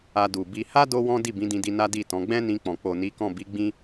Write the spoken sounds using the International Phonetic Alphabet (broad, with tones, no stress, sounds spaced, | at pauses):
a˧ d u˨ b i˧ h a˦ d o˦ w ɔ̃˦ d i˦˨ b ĩ˨˦ d ĩ˧ d i˧ n a˦ d i˦˨ t ɔ̃˨˦ ɡ͡b ɛ̃˦ n ĩ˧ k͡p ɔ̃˨ k͡p o˨ n i˨˦ k ɔ̃˦˨ b i˨˦ ɡ͡b ĩ˦